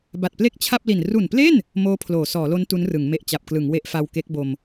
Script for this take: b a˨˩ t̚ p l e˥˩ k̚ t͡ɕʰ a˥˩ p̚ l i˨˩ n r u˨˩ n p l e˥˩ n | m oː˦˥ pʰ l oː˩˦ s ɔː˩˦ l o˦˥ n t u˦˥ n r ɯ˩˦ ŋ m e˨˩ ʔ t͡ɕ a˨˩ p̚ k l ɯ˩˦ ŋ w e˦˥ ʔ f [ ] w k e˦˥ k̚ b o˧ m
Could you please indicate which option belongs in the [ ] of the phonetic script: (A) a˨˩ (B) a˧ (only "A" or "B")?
B